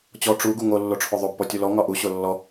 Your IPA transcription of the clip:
t͡ɕɔ ʈ͡ʂu ɡuŋo lːoʈ͡ʂʰoðˤob pɔtʲulɔ ŋɒʔu ɕolːɔ

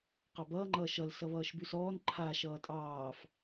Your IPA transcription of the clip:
qɑbʌː ŋ͡ǃʌːʃʌl sʌβʌːʃbʉsɔːn ǃʰa ʃʌːtʼɑːf

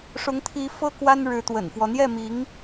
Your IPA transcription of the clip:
ʂʊ˧˥ŋt̪ʰi˧˥fɤ˥ kwa˥nɻɻ̩˧˥t̪wə̰˨˩nfwɔ˦ n̪jɛ˥˩mi˧˥ŋ

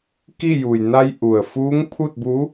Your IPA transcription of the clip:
ki˥˨ ju˩j na˧j ʔu˩ə̯ fuː˧˥ŋpʰu˥˨t̚bu˧˥

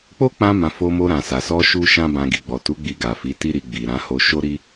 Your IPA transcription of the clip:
k͡po˦k͡pã˧mã˨ fo˧mo˧ɾã˨sa˨ sɔ˧ ʃu˦ʃã˦bã˧ ɡi˨ɡ͡bɔ˨tu˨˦ ɡ͡bi˧ɡa˨fi˨˦ti˦ ɾi˧ ɡ͡bi˨ɾã˨˦ ho˧ ʃo˦ɾi˦

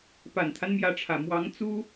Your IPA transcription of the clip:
pa˨˩nt̪ʰa˦nmjä˧˥ʈ͡ʂʰä˨˩ mwɑ˧˥ŋt͡su˥

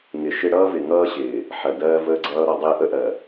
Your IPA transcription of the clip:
ŋɪ˨ʃɪ˦ ɽʌː˦vɪ˨ŋʌː˦ɕɪː˨ | ħɜ˨dɜː˦ vəː˦ɡ͡ǀʌː˦ɾɔ˨˦dˤɪː˦ ʔə˦ʔɜ˨

